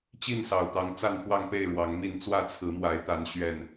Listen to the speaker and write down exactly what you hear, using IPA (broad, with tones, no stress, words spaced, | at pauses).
t͡ɕi˥˨nsɑ˨˩ʊ̯t̪ɑ˨˦ŋ t͡sa˥˨nxwɑ˥˨ŋpe˥˨ɪ̯ ɻwɑ˨˦ŋmi˥˨n t͡swä˥˨t͡sʰɹ̩˨˦mwa˨˦ɪ̯ t̪a˨˦n ɕɥɛ˥˨n